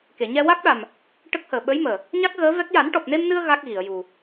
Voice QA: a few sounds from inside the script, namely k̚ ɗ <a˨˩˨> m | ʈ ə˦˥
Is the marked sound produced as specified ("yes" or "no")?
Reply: no